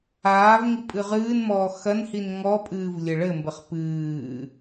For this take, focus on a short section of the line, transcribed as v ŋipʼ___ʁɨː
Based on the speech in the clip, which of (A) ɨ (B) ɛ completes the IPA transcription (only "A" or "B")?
A